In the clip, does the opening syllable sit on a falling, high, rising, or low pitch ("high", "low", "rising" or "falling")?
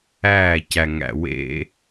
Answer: falling